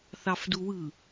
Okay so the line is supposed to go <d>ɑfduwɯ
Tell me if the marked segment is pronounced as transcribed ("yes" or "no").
no